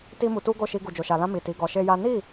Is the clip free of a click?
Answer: yes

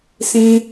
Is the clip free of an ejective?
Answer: yes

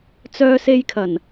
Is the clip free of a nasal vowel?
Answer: yes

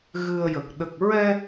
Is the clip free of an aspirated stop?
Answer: yes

